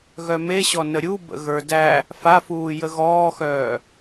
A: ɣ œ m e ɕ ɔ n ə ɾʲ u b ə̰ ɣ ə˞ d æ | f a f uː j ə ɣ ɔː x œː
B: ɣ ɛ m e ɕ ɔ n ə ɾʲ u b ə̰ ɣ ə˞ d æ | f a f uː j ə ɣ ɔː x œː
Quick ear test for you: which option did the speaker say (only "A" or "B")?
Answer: A